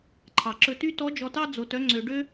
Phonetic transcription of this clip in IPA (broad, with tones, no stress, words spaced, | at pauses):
ǃʰɑ˩ǁɵ˧ty˥ tɔ˧˥d͡ʒɔ˧tɑ˥ d͡zo˧tœ˧˥ ŋ͡ǀø˧ɖø˥